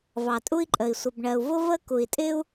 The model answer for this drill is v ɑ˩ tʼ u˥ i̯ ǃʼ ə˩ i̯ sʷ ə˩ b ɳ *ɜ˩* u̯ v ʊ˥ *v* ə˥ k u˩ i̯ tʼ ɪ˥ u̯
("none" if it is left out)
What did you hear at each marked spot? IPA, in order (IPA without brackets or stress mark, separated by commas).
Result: ɜ˩, v